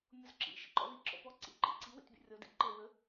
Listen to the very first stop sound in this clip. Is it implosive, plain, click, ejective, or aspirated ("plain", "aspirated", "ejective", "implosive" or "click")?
click